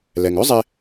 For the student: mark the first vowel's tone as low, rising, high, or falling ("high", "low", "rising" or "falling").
low